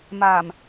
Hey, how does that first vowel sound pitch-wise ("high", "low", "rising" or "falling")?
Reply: low